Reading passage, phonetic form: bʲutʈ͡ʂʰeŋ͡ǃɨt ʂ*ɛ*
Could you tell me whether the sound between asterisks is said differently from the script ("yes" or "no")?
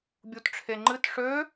yes